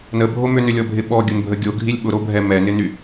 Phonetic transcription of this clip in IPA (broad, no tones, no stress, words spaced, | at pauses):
nəbʱo mʏnʏlʲɔbʱɪ ɓɔɡʲʊnbʱə ɡʲoɡʱilʲ ɓʊɾobʱɛ mɛnɪny